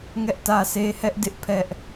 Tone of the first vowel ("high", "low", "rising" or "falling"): high